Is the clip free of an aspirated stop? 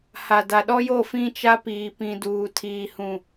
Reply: no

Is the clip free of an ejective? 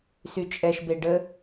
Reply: no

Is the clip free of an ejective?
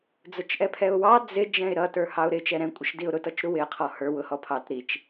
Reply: no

